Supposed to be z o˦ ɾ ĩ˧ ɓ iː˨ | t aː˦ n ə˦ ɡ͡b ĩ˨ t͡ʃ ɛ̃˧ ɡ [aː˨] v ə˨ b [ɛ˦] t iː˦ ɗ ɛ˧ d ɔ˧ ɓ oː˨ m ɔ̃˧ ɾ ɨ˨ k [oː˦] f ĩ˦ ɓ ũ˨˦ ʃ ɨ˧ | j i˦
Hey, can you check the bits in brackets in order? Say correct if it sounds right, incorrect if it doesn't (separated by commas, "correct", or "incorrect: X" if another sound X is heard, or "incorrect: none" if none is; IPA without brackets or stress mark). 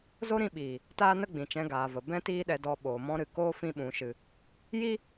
correct, incorrect: ɛ̃˦, correct